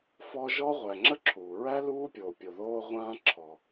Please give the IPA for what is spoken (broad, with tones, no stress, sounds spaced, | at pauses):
f ɔ˦ ʒ ɔ˥ ʁʷ æ˨ ŋ͡ǁ ə˥ ǁʰ uː˩ ɹ æ˥ l uː˥ pʲ oː˨ pʲ o˨ ð oː˦ ʁʷ ãː˦ ǁʰ ɔ˨